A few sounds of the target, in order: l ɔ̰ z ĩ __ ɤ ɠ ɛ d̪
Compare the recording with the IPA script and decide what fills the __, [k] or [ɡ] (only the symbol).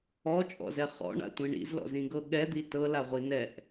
ɡ